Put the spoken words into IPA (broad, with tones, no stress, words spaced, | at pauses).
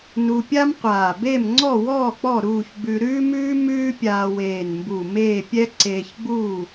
nu˧pʲa˥mqʷaː˧˩ be˥˨mŋ͡ǀɔ˥˨wɔː˥˨k͡pɔ˥˨ ɾuː˥˨ç ɡ͡bʉ˧ɾʉː˥mʉː˥ mʉː˥pʲaː˧weː˧˩nmbu˧˩ meː˥˨pʲɛ˥ ǀeː˧çɡ͡buː˥˨